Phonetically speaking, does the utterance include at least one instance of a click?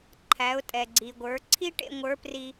yes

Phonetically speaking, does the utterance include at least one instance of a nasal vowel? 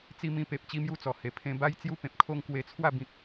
yes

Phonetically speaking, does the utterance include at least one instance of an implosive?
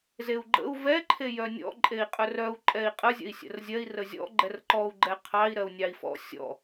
no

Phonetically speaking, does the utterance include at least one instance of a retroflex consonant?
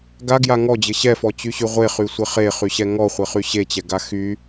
no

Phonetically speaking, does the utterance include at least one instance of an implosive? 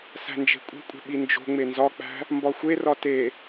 yes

